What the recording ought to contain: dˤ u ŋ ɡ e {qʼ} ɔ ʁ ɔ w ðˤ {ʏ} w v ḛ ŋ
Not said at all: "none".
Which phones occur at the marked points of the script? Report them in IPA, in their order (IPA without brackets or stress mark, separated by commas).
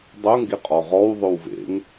qʼ, ʏ